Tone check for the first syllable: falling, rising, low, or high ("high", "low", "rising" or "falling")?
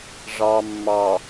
low